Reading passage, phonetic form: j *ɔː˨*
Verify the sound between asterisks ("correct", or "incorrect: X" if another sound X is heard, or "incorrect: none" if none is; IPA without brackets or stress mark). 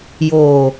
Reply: incorrect: oː˨